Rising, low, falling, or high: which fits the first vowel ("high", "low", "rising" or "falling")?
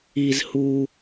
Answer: high